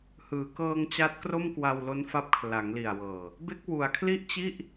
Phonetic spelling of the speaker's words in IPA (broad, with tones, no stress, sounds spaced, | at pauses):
h ɯː˩˦ k ɤː˧ ŋ t͡ɕ a˦˥ t̚ k r o˥˩ m k w a˧ w l o˦˥ n f a˦˥ p̚ kʰ l a˩˦ ŋ l i˨˩ a̯ w ɤː˨˩ | b e˦˥ k̚ w u˩˦ a̯ kʰ l i˥˩ ʔ t͡ɕ i˥˩ ʔ